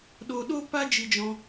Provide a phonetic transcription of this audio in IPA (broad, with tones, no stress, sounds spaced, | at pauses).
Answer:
ɗ o˧ ɗ o˦ p a˦ d͡ʒ i˦ d͡ʒ ɔ̃˦